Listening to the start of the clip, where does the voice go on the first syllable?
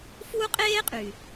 high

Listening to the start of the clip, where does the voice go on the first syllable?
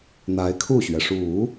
rising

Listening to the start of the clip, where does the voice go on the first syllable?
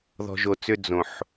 low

